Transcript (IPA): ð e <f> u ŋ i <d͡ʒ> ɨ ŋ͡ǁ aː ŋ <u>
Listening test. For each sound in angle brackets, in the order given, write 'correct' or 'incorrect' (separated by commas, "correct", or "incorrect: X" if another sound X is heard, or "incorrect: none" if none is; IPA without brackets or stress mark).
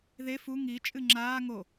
correct, incorrect: t͡ʃʼ, incorrect: o